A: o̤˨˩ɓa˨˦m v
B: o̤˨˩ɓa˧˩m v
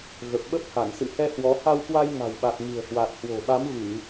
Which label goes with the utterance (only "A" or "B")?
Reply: A